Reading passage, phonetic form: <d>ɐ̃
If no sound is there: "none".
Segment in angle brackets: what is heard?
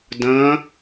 d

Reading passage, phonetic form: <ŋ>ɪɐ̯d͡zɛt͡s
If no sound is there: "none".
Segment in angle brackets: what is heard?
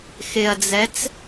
x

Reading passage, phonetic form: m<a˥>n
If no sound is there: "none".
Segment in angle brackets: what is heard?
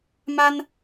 a˥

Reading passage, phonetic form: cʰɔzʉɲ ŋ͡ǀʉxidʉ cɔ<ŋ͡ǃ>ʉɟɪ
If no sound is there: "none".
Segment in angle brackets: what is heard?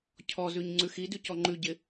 ŋ͡ǃ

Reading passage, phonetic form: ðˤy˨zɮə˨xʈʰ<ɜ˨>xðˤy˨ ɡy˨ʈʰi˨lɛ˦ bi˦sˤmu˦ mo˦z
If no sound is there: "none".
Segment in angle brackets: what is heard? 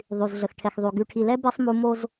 ɛ˨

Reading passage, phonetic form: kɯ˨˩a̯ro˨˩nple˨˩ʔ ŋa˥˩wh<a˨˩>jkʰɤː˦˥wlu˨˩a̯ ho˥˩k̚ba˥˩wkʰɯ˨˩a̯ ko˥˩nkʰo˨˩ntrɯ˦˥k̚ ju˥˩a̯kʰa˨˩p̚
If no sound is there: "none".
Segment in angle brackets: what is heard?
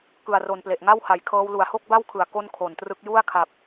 a˨˩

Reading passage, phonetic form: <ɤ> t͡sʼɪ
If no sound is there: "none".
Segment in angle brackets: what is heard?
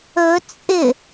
ɵ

